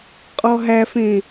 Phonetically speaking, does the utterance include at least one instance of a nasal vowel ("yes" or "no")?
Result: yes